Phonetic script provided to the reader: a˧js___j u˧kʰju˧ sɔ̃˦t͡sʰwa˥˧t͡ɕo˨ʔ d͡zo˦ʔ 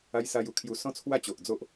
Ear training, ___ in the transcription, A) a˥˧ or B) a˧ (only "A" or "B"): B